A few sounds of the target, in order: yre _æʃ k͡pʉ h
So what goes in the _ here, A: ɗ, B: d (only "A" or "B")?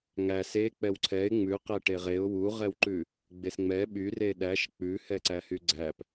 A